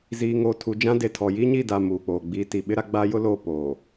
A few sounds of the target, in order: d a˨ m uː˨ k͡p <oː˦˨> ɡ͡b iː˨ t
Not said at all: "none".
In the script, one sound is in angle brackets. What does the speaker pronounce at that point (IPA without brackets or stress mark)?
oː˨